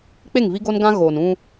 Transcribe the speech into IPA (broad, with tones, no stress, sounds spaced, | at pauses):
k͡p e˦˨ ŋ v i˦ ɡ o˦ n ɡ ã˦ ɣ oː˨ n ũ˦